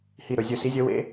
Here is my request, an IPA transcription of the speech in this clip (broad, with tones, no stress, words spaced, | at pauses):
hi˧˩ɾɵ˧˩zʲɵ˧˩ si˨˥zʲə˨˥wḛ˨˥